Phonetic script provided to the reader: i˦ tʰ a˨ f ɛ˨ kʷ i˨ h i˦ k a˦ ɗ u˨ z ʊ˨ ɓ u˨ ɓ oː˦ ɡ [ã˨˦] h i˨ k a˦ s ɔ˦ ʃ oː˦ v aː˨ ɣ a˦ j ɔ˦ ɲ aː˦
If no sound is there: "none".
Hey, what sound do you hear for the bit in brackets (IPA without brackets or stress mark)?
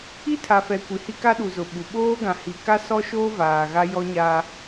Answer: ã˨